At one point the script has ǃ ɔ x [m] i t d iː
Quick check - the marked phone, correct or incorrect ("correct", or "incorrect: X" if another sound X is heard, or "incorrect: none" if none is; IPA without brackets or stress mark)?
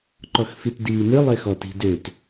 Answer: incorrect: f